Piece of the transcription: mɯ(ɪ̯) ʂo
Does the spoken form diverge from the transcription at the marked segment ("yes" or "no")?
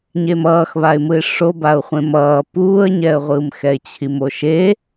no